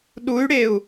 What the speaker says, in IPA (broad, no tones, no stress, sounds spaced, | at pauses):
ɗ u y̯ ɽ e u̯